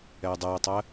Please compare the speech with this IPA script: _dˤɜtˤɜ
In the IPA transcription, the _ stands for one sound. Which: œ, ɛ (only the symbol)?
ɛ